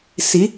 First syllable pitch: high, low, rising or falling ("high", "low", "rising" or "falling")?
rising